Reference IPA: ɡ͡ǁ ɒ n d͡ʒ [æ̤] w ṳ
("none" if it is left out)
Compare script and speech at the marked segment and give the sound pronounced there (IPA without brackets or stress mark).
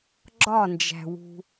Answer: æ̤